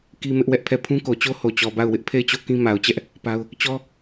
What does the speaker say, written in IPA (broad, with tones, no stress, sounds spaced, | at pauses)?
k i˦ m ɪ˦ ʔ w ɛ˦ ʔ pʰ ɛ˦˨ pʰ ũ˦ k o˨ t͡ɕ o˦ h o˨ t͡ɕ ɔ˨ b a˦˨ ʊ̯ w ɪ˦ ʔ pʰ e˦˨ ɪ̯ t͡ɕ o˦˨ k ĩ˦ m a˨ ʊ̯ t͡ɕ ɛ˦ ʔ | p a˦ ʊ̯ | t͡ɕ ɔ˦